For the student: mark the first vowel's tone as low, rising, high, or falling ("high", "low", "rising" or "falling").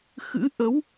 rising